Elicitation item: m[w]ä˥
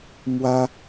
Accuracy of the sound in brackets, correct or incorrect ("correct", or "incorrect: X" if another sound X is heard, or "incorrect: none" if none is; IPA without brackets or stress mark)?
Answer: correct